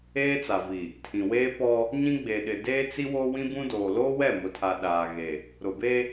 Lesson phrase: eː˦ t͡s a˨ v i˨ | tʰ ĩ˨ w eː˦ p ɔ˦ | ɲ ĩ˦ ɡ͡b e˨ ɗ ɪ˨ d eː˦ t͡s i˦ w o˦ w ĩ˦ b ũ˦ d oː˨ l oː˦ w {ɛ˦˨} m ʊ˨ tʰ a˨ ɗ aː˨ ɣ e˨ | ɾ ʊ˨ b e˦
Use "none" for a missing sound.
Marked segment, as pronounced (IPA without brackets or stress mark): ɛ˦˨